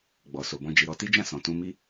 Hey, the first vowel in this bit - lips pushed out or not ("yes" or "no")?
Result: yes